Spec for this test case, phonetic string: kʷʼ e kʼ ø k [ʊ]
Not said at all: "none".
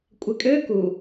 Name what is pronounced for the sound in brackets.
u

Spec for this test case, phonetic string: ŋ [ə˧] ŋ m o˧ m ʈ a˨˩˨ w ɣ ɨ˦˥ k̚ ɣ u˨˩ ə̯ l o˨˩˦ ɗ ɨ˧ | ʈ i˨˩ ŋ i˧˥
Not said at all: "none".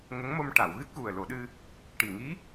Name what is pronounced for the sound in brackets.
ə˧˥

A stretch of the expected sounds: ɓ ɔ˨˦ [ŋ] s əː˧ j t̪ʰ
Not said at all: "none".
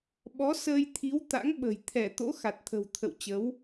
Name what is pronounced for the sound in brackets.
none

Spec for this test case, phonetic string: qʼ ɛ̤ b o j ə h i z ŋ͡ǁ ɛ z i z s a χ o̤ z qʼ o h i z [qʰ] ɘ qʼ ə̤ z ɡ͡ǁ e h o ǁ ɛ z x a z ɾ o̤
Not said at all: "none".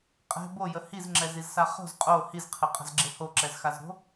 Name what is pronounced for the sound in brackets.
qʰ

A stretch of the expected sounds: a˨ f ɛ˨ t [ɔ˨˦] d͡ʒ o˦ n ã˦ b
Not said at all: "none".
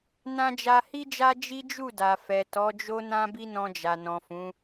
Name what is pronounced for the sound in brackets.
ɔ˨˦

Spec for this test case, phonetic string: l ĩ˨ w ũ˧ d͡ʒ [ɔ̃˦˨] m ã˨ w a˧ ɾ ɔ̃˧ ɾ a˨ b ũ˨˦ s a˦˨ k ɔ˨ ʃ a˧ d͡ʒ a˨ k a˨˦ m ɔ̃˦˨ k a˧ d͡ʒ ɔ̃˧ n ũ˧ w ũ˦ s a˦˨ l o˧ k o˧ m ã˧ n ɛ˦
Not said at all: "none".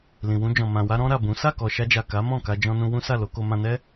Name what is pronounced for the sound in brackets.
ɔ̃˨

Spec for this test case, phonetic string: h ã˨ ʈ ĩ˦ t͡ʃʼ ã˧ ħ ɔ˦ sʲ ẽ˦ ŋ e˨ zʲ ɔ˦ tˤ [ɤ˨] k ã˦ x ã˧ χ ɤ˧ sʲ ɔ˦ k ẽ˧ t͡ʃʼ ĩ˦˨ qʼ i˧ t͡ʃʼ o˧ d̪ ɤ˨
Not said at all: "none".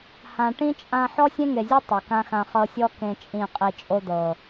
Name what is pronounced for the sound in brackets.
o˨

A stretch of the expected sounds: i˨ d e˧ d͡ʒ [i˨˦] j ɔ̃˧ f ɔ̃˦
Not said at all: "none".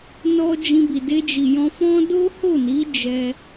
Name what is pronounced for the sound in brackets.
i˨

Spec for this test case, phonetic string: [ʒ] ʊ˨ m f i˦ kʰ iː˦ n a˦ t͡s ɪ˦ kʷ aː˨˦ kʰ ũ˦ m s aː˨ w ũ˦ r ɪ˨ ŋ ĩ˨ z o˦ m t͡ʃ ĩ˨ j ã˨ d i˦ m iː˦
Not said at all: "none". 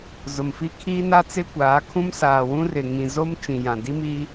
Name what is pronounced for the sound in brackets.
z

